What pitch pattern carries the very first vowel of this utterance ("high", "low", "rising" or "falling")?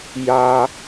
low